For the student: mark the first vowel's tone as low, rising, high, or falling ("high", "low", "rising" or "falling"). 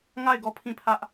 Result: falling